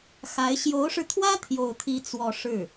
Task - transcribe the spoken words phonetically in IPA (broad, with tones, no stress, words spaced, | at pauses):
xa˧˥ɪ̯ ɕjo˧˥ʊ̯ʂɻ̩˧t̪ʰwä˥ t̪ʰjo˥˩ʊ̯t̪ʰi˥ t͡swɔ˥˧ ʂɻ̩˥˩